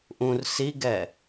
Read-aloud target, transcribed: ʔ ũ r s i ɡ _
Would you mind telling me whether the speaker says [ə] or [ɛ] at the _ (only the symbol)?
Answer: ɛ